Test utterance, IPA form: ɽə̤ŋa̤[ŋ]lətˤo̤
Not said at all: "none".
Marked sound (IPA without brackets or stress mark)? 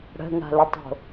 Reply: none